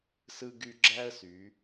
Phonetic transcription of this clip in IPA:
s ɯ˧ ɡ y˧ ɡ͡ǁ æ˥ ə̯ s y˩˧

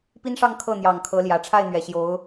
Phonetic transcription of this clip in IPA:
p i˥ n ʂ ɑ˥˧ ŋ kʰ ɤ˥˩ n̪ j ɑ˨˩ ŋ kʰ ɤ˧˥ l j ä˨˩ ʈ͡ʂʰ a˥˩ ɪ̯ n̪ ɥ ɛ˨˩ ɕ j o˧˥ ʊ̯

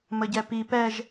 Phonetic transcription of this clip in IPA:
m ə ɟ ɛ p i p ɛ ʒ

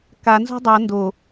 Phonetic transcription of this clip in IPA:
k a n z o̤ dˤ ʌ n d o

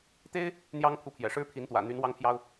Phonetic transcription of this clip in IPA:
t̪ e˥ ɪ̯ | n̪ j ɑ˥ ŋ pʰ u˧˥ pʰ j ɛ̰˨˩ ʂ ɻ̩˥ pʰ i˧˥ n t̪ w ä̰˨˩ n̪ y˧˥ n w ɑ˥ ŋ pʰ j ɑ˥ ʊ̯

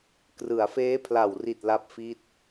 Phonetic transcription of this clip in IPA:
k r ɯ˩˦ a̯ f eː˦˥ pʰ l a˨˩ w r i˨˩ t̚ l a˥˩ p̚ f i˥˩ t̚

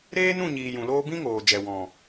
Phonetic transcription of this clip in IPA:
ɾ eː˦ n ũ˦˨ ɲ iː˨ j ũ˨ l oː˦ b ĩ˦ ŋ oː˨ d͡ʒ ɛ˨ w ɔ̃˨

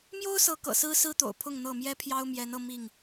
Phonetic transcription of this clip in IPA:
m j o˦ ʊ̯ s ɤ˨˦ k ɤ̰˨˩ s ɹ̩˦ s ɹ̩˦ t̪ o̰˨˩ ʊ̯ pʰ ʊ˥˨ ŋ n̪ ɤ˥˨ m j ɛ˦ pʰ j ɑ˦ ʊ̯ m j ɛ˨˦ n ɤ˧ m i˥˨ ŋ

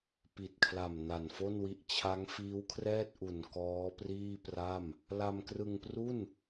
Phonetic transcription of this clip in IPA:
p i˨˩ t̚ kʰ l a˨˩ m n a˨˩ n f o˥˩ n w i˦˥ ʔ t͡ɕʰ a˦˥ ŋ f iː˦˥ w kʰ r ɛː˥˩ t̚ ʔ u˨˩ n k ɔː˦˥ p r iː˥˩ p r a˥˩ m | l a˧ m k r ɯ˧ ŋ p r u˥˩ n

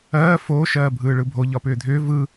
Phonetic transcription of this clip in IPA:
ɜː f o ʃ ɜː bʱ ɯː ɭ ɯ bʱ o ʎ ɒ p ʏː dʱ ʏː v ɯ

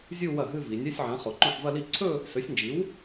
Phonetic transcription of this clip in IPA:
zʲ u˥˧ w ɐ˥˩ ɦ ɨ˥˧ v i˩˧ nʲ a˧˥˧ sʲ ʕ ã˩˥ χ o˩˧ ǃ õ˥˩ ħ v ɐ˥˧ l i˥˧ ǀʰ ɵ˥˧ | s ɵ˩˥ sʲ n d͡ʒ i˩˥ w

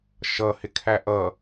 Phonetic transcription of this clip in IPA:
ʃ ʌ h ɪ kʰ æ ʔ ʌ

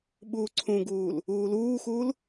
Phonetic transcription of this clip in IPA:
ɓ uː ǀʰ ũ ɡ uː l | uː l uː x uː l

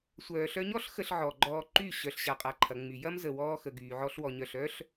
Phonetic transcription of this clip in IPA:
sʷ œː˨ ɬ œ˧ ɲ ɔ˦ ɬ x ə˧ ɬ ʕ ɔ˨ ɡ͡ǃ ɔː˧ ǃ y˦˨ ɕ œ˨ ɬ ɕ a˨ qʼ a˨ ǃʰ ɐ˨ ŋ͡m y˨ j ɐ˦ m z ə˨ w ɔː˧ x ə˨ ɡ yː˨ ʕ ɔ˧ ɬ w ɔ˨ ɲ œ˨ ɬ œː˦ ɬ

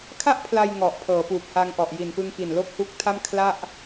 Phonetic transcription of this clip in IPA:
kʰ a˥˩ ʔ pʰ l a˧ j ŋ ɔ˨˩ ʔ pʰ ɤː˩˦ p uː˨˩ p̚ h a˧ ŋ ʔ ɔ˨˩ ʔ j i˨˩ n p ɯ˧ ŋ k i˨˩ n l o˥˩ k̚ h u˦˥ k̚ tʰ a˥˩ m kʰ l a˥˩ ʔ

